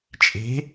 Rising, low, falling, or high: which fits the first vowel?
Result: rising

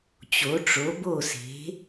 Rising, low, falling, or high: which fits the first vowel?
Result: rising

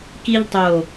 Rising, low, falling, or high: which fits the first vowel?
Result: high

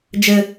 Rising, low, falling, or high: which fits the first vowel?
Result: high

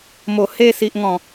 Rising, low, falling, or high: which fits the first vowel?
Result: low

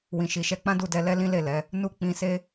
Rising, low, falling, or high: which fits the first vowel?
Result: low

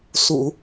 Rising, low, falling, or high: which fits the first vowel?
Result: low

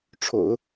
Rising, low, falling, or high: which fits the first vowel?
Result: low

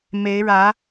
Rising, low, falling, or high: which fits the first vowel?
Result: rising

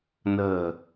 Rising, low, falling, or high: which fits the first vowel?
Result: low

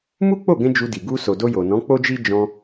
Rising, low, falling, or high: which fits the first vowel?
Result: high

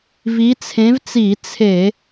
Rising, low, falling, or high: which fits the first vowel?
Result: rising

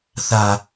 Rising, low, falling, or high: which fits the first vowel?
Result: low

